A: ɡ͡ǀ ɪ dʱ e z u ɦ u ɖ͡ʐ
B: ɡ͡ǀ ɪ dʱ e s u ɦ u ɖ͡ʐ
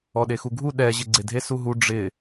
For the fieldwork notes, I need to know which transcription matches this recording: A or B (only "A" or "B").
B